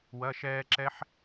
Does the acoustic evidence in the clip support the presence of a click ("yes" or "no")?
yes